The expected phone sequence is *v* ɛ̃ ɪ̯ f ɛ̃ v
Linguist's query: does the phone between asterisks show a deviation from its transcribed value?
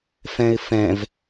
yes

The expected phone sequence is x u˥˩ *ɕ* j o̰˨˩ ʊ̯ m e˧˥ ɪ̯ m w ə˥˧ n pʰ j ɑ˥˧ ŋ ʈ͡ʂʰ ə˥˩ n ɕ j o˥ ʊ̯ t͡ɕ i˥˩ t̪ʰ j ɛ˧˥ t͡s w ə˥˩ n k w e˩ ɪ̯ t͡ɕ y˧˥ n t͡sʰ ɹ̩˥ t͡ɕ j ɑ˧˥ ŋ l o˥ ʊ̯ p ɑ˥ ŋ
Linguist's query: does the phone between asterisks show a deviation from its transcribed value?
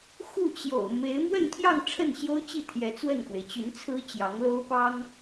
yes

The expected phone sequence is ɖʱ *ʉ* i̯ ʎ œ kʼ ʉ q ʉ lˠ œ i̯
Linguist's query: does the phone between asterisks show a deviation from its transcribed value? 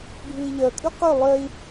no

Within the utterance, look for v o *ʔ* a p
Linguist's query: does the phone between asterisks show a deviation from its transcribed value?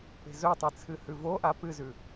no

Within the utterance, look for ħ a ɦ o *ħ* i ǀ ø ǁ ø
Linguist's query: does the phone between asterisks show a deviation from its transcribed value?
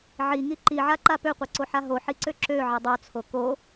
no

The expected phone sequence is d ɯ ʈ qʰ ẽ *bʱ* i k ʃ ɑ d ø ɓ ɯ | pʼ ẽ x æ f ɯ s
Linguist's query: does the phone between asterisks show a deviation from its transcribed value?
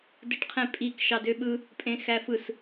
yes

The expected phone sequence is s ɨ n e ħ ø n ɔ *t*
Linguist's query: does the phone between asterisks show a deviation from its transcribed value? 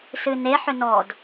yes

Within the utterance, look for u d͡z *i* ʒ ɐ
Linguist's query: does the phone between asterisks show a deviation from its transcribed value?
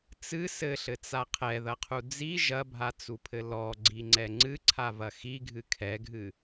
no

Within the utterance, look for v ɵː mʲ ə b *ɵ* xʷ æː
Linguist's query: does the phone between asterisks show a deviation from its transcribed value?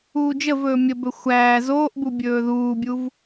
no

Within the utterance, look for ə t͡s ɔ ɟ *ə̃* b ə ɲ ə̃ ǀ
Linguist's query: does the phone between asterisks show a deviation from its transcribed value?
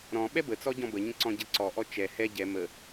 yes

